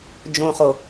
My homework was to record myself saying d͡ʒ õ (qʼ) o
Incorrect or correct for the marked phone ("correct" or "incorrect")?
incorrect